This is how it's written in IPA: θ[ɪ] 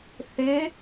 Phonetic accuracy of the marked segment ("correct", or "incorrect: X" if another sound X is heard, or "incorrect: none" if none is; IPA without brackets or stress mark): correct